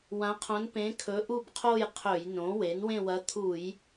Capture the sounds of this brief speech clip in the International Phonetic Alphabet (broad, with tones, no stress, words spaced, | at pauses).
wã˧˥qʰõ˧˥npẽ˧˥ kʰɵ˧˥ʔu˥˧bqʰo˥˧j qʰɵ˧˩˧jnõ˩˥ we˩˥nwẽ˥˧wɐ˧˥ t̪ʰu˧˩˧j